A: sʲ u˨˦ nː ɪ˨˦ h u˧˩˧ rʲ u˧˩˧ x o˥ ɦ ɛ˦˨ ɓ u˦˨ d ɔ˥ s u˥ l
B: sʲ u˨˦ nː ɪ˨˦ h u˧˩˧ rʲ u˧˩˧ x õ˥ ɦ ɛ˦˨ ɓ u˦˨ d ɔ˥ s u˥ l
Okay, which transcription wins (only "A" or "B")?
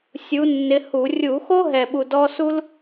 A